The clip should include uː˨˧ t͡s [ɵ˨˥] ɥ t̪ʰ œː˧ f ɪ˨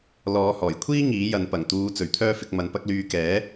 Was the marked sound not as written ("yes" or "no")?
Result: yes